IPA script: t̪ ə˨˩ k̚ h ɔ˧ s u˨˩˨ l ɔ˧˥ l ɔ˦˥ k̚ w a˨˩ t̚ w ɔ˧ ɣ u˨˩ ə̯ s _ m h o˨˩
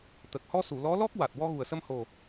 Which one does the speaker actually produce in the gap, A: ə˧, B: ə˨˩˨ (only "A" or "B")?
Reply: A